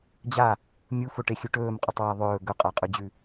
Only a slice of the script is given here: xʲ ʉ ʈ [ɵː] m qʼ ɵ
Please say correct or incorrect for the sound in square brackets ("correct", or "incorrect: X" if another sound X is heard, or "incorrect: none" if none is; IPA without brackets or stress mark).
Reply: correct